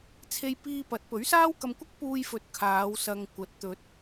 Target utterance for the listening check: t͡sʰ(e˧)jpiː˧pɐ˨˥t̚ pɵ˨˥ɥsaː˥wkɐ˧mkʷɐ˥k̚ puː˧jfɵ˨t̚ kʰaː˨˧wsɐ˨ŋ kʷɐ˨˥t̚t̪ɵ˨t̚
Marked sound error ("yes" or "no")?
no